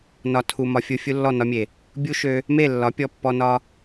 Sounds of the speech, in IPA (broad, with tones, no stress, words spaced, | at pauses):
nɒ˨ tʰu˨ mɒ˧fʲu˧ fʲu˧lːɔ˦˨nɒ˧mʲe˨ | bʲu˦ʃø˧ | me˦˨lːɒ˨˦pʲɔ˧pːɔ˧ nɒ˧